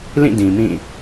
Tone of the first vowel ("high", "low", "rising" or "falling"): falling